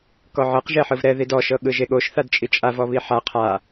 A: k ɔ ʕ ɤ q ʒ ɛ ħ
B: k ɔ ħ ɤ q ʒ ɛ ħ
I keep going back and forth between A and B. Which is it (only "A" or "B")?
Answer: A